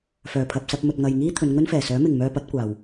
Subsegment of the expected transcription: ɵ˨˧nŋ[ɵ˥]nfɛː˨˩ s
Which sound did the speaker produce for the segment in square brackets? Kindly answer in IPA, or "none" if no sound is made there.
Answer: ɵ˥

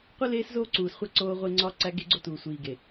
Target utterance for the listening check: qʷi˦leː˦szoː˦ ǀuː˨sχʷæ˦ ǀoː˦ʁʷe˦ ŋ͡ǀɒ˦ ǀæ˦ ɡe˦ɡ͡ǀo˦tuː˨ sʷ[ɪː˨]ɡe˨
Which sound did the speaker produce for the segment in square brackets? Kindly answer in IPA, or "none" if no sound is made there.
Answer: iː˨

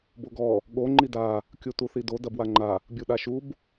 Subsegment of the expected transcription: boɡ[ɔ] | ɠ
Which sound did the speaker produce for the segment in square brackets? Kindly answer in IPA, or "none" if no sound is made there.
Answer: ɔ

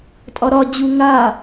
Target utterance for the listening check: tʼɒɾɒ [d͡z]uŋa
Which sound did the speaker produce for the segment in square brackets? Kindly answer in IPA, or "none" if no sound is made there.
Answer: d͡ʑ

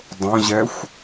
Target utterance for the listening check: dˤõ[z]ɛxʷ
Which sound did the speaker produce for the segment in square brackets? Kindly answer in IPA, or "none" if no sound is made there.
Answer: ʑ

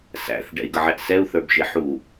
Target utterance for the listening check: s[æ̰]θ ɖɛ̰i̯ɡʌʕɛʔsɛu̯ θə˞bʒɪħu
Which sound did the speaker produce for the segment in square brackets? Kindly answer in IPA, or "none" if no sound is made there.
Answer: æ̰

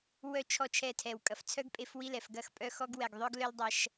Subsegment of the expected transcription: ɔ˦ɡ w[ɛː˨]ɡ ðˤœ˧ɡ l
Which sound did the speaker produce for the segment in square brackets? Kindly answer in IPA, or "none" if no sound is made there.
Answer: ɛ˨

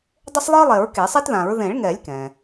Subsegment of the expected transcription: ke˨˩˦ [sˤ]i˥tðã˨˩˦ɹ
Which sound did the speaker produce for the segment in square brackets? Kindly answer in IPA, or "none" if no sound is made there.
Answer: sˤ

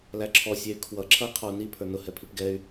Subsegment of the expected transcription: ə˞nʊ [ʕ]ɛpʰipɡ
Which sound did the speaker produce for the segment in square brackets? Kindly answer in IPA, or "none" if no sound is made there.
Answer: h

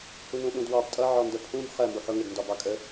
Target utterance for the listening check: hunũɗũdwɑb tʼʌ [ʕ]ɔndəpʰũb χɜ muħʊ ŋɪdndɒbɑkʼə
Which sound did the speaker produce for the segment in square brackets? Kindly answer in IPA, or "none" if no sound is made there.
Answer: ʕ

